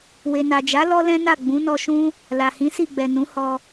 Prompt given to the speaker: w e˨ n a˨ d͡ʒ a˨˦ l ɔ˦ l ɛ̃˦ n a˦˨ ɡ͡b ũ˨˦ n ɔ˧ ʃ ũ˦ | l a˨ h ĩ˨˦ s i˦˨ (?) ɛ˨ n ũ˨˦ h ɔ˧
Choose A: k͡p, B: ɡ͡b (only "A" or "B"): B